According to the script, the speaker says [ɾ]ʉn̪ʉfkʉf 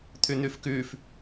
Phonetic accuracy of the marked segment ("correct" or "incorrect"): incorrect